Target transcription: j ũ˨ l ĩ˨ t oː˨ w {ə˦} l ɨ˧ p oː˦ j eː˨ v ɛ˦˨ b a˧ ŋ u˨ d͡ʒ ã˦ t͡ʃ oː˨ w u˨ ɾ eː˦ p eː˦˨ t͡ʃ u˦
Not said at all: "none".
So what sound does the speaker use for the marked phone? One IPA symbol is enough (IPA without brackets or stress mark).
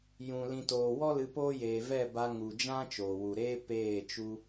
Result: ɔ˦